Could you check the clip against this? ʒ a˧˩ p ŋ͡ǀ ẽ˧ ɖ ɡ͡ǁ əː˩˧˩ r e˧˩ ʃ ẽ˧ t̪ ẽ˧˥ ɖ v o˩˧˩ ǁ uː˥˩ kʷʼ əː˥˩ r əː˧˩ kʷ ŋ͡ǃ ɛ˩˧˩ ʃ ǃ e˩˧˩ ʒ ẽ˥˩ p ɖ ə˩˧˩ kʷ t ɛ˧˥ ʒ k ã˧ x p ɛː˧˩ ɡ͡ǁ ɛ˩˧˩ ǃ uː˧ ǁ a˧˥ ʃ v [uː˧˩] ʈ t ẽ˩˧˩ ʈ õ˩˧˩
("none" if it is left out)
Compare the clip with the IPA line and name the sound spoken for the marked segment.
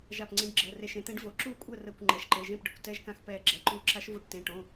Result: u˧˩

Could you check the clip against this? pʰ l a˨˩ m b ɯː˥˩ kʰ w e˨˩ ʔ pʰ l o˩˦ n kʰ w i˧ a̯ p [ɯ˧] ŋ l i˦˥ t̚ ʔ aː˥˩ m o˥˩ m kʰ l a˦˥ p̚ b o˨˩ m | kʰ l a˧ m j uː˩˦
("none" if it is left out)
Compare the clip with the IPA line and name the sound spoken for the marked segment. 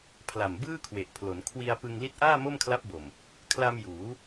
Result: ɯ˧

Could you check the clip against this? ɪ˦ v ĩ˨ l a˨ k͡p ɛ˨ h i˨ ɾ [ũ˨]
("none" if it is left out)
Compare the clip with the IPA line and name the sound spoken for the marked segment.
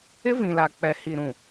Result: ũ˨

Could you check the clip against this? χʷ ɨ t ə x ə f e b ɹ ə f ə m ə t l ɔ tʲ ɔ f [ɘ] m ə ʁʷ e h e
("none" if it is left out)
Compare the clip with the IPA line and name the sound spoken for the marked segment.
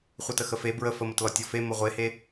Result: e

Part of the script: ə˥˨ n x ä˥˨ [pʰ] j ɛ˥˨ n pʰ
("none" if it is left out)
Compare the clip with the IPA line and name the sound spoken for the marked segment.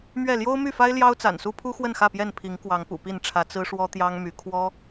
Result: p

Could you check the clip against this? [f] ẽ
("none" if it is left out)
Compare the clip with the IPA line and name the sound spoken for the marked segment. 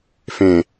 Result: f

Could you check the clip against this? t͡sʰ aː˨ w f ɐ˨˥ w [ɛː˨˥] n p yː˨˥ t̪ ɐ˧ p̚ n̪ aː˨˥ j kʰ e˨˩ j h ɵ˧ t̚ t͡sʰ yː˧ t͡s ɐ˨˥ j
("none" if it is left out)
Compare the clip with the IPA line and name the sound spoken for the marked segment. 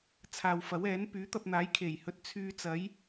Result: ɛː˨˥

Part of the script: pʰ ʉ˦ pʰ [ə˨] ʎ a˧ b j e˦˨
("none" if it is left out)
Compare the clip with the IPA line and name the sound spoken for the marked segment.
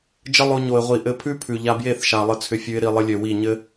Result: ʉ˨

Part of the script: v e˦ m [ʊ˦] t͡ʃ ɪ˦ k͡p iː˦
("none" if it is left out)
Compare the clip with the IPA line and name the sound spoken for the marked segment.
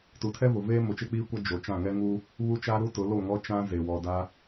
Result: ʊ˨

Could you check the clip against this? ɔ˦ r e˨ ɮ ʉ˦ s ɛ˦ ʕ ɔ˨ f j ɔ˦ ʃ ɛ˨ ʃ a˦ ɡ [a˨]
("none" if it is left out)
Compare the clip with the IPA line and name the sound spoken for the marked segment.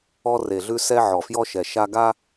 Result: a˦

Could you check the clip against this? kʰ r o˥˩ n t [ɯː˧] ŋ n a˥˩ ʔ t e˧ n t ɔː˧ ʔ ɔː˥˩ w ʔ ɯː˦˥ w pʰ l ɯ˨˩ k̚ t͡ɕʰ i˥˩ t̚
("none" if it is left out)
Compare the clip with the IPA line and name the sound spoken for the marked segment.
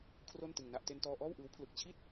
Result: ɯ˧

